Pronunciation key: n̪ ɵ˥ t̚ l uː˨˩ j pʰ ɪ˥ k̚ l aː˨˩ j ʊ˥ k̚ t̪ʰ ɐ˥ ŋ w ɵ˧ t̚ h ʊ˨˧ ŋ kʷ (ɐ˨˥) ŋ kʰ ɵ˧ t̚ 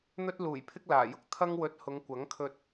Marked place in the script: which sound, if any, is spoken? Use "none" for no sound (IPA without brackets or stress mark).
ɐ˨˥